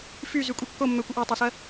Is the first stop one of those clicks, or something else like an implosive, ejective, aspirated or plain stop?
ejective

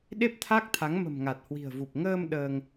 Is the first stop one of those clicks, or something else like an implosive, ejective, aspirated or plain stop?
implosive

